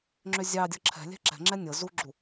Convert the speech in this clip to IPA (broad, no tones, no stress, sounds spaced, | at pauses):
ŋ͡ǁ ʏ zʲ ɑ dʲ ɤ ǁʰ ɛ̤ lʲ ɛ̤ ǁ ɛ̤ ŋ͡ǁ ɛ nʲ ɤ z u ɡ͡ǁ u